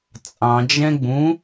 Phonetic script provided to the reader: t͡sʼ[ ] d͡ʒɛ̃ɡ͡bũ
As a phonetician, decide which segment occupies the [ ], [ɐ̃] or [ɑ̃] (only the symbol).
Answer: ɑ̃